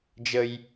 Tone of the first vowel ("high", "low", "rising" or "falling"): high